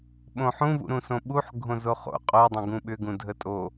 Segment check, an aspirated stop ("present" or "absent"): absent